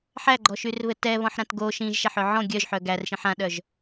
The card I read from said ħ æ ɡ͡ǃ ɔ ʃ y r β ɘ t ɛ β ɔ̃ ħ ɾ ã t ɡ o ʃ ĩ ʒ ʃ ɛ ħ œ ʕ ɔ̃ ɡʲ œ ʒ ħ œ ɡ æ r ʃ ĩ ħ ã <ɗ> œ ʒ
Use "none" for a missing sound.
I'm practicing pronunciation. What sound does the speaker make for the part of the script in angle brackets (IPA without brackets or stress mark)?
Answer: ɗ